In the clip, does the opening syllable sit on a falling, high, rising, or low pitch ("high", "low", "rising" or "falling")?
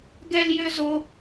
high